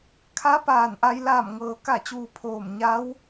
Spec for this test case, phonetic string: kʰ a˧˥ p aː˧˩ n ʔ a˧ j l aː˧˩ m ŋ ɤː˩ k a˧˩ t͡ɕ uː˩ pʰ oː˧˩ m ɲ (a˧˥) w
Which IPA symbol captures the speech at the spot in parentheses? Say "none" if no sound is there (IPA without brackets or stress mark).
a˧˥